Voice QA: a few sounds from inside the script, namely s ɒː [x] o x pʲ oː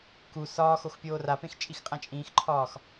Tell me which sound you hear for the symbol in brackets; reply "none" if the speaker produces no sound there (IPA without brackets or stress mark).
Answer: x